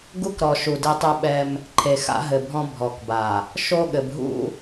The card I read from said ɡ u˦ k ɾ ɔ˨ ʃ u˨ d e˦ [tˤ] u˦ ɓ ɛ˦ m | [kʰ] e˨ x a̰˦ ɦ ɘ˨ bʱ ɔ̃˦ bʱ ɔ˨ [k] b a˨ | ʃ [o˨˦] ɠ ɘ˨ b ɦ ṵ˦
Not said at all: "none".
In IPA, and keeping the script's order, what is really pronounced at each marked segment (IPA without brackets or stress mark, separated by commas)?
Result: tˤ, ǃʰ, k, o˦